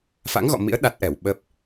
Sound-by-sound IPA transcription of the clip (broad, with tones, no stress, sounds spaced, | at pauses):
f a̰˧˥ ŋ ɣ ɔ̰˧˨ m ḭ˧˥ ə̯ ɗ a˦˥ t̚ ʔ ɛ˧˩ w ɓ ə˦˥ p̚